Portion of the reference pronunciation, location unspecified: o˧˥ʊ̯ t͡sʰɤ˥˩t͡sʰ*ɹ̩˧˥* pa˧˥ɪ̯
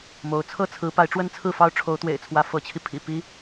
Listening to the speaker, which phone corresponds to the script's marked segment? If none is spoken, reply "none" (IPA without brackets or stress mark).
ɹ̩˧˥